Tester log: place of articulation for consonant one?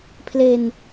labial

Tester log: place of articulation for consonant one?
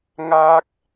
velar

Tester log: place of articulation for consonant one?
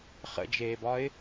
uvular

